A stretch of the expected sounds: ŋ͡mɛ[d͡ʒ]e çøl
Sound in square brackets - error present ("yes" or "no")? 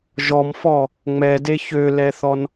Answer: yes